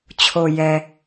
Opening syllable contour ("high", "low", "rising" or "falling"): low